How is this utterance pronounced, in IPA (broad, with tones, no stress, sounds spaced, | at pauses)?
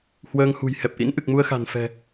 h w əː˧ ŋ h ṳ˨˩ j h ɛ˨˩ p̚ ʔ ḭ˧˥ n ʔ ɨ˨˩ k̚ m u˧ ə̯ x a̤˨˩ n f ɛ̤˨˩